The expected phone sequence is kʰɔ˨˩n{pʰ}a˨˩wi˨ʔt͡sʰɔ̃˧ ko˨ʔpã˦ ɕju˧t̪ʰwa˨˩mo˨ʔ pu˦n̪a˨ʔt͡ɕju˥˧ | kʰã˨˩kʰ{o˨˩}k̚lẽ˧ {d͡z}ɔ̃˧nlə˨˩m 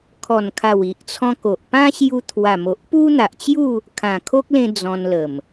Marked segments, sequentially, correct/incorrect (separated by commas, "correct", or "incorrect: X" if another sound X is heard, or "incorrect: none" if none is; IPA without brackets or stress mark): incorrect: kʰ, incorrect: o˦, correct